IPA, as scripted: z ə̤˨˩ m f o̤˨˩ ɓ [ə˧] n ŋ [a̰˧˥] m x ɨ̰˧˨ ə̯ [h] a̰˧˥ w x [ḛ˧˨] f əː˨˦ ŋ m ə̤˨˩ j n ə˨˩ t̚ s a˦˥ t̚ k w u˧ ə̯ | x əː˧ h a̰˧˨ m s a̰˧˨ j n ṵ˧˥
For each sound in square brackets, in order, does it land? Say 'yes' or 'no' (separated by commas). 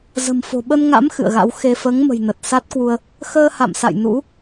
yes, yes, no, no